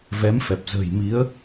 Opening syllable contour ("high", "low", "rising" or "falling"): rising